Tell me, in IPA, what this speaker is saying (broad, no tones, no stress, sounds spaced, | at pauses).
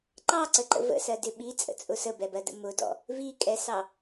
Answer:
ǃ ɑ ǀ ə ǃ ə̰ v ə̰ s ɜ d ɪ ɓ i t͡sʼ ə̰ t͡sʼ ʊ s ə b ɛ b ɜ d ə̰ m ʊ d ɔ̰ | v i kʼ ɛ s ɑ